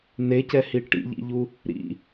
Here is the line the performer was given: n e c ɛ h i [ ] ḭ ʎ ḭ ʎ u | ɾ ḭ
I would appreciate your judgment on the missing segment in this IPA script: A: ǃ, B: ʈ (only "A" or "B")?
B